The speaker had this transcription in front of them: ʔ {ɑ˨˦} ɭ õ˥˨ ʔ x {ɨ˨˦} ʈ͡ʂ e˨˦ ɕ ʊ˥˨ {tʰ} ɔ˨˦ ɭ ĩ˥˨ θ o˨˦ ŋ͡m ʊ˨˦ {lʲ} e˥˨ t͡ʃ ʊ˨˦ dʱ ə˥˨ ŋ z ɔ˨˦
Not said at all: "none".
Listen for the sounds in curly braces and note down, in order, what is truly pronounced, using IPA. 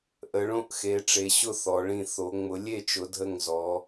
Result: ə˨˦, e˨˦, θ, lʲ

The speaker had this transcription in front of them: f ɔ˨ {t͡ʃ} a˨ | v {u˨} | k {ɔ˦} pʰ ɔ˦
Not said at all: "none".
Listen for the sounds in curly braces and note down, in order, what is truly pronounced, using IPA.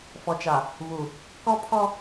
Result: t͡ʃ, u˨, ɔ˦

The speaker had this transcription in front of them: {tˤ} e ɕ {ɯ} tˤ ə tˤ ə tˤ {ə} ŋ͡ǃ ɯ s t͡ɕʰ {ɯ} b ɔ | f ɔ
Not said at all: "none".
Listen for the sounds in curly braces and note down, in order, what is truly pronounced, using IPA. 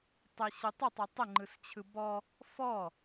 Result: tˤ, ɯ, ə, ɯ

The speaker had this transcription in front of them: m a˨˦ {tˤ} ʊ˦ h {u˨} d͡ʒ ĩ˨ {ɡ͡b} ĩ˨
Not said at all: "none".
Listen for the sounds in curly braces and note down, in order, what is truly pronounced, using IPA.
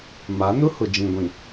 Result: n, ʊ˨, ɡʷ

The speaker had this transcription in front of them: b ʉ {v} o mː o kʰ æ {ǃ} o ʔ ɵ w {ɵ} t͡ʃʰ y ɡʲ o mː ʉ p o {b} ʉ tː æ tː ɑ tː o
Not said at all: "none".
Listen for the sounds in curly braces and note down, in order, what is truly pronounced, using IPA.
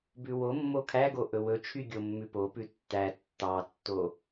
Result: w, ɡ, ɵ, p

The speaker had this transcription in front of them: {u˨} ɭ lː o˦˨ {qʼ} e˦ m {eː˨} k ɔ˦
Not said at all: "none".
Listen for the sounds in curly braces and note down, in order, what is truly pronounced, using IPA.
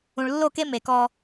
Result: ũ˨, k, e˨

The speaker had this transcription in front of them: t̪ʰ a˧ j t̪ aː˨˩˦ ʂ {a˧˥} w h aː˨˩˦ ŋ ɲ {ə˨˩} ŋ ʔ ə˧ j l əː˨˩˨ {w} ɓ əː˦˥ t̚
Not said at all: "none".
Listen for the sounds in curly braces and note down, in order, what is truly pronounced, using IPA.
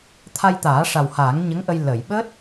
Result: a˨˩, ə˧˥, j

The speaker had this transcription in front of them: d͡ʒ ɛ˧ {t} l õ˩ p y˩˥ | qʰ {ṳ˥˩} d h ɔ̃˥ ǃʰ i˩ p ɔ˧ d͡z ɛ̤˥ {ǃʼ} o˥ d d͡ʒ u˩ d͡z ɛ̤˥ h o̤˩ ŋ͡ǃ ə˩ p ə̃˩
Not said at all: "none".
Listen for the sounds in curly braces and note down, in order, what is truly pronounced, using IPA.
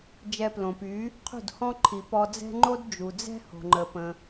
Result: p, ṳ˥˩, ŋ͡ǃ

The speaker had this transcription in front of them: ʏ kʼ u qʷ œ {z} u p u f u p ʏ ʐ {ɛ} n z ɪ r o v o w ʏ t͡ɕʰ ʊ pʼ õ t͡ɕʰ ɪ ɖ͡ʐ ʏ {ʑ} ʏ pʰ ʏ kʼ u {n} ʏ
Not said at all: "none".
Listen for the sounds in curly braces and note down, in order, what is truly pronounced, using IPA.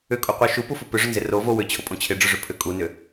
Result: ʃ, ʏ, ʐ, n

